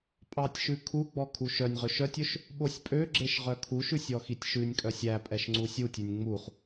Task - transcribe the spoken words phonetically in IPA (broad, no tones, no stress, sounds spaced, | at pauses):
pʼ ɑ tʲ ʃ ʉ kʰ u ɡ͡b ɔ kʰ u ʃ œ nʲ ʁ ɵ ʃ œ tʲ ɵ ʃ | ɓ o sʲ pʼ ø ɡ͡ǁ e ʃ ʁ œ kʰ u ʃ ʉ sʲ ɔ x i tʲ ʃ ʉ nʲ kʼ œ sʲ æ pʼ ɛ ʃ ŋ͡ǀ u sʲ u tʲ ʉ nʲ ŋ͡m u χ